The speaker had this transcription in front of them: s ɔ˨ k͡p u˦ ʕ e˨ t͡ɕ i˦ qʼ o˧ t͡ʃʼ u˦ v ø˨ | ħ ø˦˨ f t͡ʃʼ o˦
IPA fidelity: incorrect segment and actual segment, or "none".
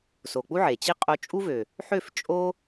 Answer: ɔ˨ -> o˨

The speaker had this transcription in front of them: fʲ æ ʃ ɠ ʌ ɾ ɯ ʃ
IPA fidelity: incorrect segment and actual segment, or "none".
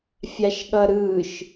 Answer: æ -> a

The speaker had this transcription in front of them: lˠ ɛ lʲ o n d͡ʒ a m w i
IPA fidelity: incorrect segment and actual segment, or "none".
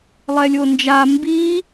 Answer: w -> b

